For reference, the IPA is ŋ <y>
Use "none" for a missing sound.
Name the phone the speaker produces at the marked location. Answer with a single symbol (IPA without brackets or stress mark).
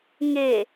e